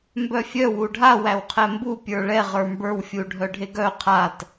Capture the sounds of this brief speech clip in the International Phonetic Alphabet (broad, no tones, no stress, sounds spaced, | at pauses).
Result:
m b œ fʲ œ w u ɖʱ a w æ w qʰ ɛ m b u pʲ ə˞ ɭ ɛ ʁ ə˞ m b ə˞ w fʲ u ɖʱ œ ɖʱ e ɡ œ qʰ a t